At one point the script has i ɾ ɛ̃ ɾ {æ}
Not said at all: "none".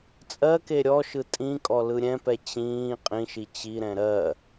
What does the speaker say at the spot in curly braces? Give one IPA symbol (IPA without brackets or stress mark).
ɜ